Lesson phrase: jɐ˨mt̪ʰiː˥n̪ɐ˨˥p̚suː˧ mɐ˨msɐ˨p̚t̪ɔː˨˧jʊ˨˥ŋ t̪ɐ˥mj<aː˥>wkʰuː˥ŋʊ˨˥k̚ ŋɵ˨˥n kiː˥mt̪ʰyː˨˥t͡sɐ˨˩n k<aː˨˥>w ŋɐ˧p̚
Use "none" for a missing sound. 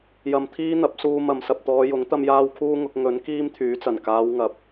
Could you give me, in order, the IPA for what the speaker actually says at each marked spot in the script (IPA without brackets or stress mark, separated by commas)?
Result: aː˥, aː˨˧